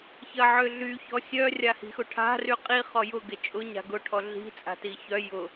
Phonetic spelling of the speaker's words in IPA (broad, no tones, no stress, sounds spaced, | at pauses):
ç ɐ ʕ ʏ ɮ y ç ɔ sʲ œ rʲ a h i̤ x ʊ ʈʰ a̤ r y qʼ i χ ɔ j ʊ ɡ ɪ t͡ʃʼ ʊ ɲ a̤ ɡ ʊ ʈʰ ɔ ɮ i̤ t͡sʼ a̤ t i ç œ j ʊ